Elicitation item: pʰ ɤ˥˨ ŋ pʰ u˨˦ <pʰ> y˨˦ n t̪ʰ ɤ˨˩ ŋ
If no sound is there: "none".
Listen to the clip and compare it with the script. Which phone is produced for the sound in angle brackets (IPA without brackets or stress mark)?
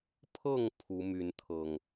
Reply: m